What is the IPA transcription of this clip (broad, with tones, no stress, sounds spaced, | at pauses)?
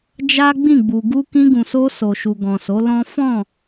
d͡ʒ a˦ ɡ͡b ĩ˦˨ ɡ͡b u˨ ɡ u˧ k ĩ˧ ɡ ũ˨ s o˧ s o˨ ʃ u˨ ɡ ɔ̃˨ s o˨˦ l ɔ̃˦ f ɔ̃˦˨